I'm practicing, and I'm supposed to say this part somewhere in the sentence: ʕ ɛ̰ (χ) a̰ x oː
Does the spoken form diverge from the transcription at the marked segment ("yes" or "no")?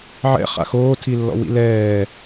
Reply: no